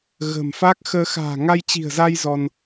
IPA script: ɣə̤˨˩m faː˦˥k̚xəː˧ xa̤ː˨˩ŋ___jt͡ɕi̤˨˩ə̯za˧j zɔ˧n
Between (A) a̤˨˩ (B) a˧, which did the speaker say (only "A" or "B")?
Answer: B